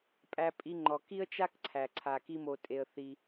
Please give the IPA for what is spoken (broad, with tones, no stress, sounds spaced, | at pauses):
pʼ æ˧ pʼ i˧ ŋ͡ǃ ɔ˩ k i˥ ə̯ t͡ʃ a˥ k ǀʰ æ˩ ǀʰ a˩ k i˧ m o˩ tʼ e˩ ə̯ θ i˩